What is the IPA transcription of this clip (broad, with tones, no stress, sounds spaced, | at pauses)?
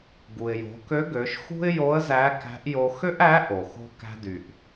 ɡ u˩ ɪ̯ j o̤˩˧ k ø˧˥ ɡ ø˩˧ ʃ x ṳ˥ ɪ̯ j o˧˥ ə̯ z æ˧˥ k æ̤˧˥ ʔ j o˧ x ø˥ ʔ æ˧˥ ʔ o˩ x o̤˧ k æ̤˧ d y˩ ʔ